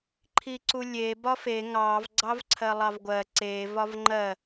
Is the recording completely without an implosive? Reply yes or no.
yes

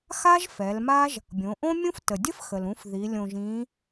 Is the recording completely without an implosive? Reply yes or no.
yes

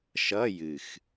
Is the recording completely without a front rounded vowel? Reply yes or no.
yes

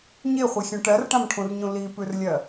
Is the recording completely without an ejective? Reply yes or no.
yes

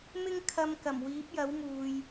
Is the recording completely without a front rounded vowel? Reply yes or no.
yes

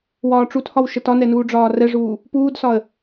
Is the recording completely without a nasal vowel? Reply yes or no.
yes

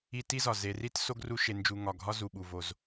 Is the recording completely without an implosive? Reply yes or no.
no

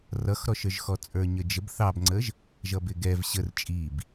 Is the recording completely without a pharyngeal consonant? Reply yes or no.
yes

